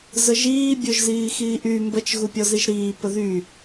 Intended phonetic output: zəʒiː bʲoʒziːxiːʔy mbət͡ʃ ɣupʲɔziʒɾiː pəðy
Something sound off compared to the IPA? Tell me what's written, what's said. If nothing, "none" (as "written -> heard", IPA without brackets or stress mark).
none